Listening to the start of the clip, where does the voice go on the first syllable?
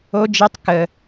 high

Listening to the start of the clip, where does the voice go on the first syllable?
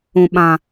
low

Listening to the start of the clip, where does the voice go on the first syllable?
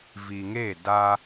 low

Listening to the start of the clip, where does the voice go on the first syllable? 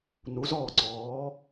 rising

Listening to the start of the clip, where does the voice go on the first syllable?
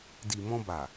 low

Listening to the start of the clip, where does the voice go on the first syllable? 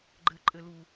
rising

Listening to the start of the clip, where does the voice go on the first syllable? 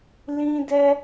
high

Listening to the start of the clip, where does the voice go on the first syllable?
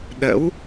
rising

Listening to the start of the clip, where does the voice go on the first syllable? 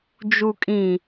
low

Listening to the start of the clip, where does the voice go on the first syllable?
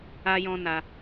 high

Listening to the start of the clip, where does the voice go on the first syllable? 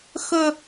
high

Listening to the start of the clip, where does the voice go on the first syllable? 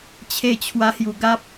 falling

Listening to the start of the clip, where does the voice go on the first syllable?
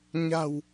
low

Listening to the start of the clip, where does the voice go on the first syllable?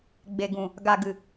low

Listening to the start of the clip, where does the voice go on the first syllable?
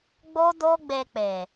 high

